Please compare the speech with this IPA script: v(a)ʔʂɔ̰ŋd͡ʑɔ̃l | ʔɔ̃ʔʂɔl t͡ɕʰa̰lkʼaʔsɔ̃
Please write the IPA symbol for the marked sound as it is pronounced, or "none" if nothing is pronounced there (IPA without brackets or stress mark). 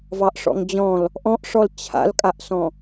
ɑ